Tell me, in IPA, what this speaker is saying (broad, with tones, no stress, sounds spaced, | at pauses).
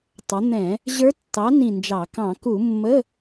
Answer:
tˤ ə˩˥ n̪ ɛ̃˧˩˧ | ʑ ə˞˧˥ tː ɑ˩˥ n ĩ˧˩ n d͡ʒ ɑ˧˩˧ k ɑ̃˧˩˧ k u˧˩˧ mː ə˧˥˧